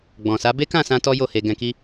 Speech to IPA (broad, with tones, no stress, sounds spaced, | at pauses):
ɡ͡b ɔ̃˨ s a˨˦ b e˦ k ã˦˨ s ã˧ t ɔ˦ j o˦˨ h e˧ ɡ ɛ̃˧ k i˦